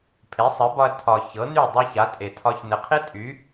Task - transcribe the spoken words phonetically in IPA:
pʰ e˩˥ sˤ ɘ˩˥ b ɒ˧ ɐ̯ tʰ ɒ˩ ç ɤ˩˥ n y˥˩ dˤ e˥ ç a˩˥ tʼ e˩ tʰ ɒ˧ ç n ɘ˩ qʰ e˥ tʼ y˩˥

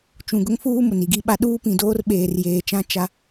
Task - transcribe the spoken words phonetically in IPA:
t͡ʃ ũ˨ ɡ ʊ˦ ŋ f uː˦ m ʊ˨ n i˨ ɡ i˦ ɓ a˦ ɗ uː˦ p ĩ˨ d oː˦ r ɓ eː˨ r j eː˨ t͡ʃ ã˦ t͡ʃ a˦

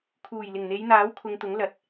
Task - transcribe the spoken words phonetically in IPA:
kʰ uː˨˩ j l ɪ˨˩ ŋ n̪ e˨˧ j n̪ aː˨˥ w kʰ ʊ˨ ŋ t̪ ʊ˨˥ ŋ l ɐ˨ t̚

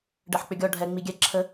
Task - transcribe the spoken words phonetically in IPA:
ɖ ɜ ħ k͡p ʏ ɡʲ ɔ ɖʱ ɛ ŋ͡m i ɡʲ ɛ ǁʰ ə

